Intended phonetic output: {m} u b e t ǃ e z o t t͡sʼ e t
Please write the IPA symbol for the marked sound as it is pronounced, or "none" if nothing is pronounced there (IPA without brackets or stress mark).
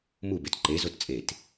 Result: m